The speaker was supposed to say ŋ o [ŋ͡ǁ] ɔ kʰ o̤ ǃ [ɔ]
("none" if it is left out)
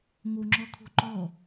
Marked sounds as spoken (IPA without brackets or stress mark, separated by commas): ŋ͡ǁ, ɔ